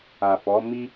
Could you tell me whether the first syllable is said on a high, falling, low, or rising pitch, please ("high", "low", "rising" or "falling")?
low